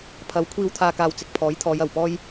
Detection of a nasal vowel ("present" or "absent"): absent